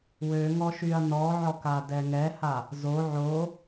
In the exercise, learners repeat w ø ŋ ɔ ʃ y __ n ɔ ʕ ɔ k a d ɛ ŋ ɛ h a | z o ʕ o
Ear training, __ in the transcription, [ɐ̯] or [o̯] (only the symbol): ɐ̯